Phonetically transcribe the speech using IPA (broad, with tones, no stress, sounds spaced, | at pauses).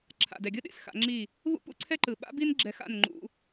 ǁʰ a̰˨ d ɛ˨ ɡʲ ɯ˦ ɗ ḭ˨ s x a̰˨˦ ŋ͡ǁ i˦˨ | β ṵ˦ p ṵ˦ ǀʰ ɛ˦ ǃ ɯ˨ ɓ a̰˦ b i˦ n ɡ͡ǁ ɛ˧ x a̰˦˨ n ŋ͡ǃ ṵ˧